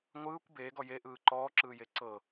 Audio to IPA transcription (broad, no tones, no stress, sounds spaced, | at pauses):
ŋʷ ɯː kʷ b eː ɡ ɔ j e ʔ ɯː ǃ ɔː ǁ ɯː j e ǀ ɤ